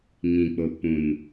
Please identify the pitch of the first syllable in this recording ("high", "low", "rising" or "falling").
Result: low